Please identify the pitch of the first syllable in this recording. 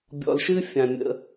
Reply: low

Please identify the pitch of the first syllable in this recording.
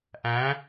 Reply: rising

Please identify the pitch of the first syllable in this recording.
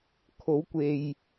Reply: rising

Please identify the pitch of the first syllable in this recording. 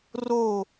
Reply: falling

